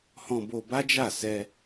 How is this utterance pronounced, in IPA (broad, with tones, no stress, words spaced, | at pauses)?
hɔ̃˧bo˧ba˦d͡ʒa˦˨ sɛ˧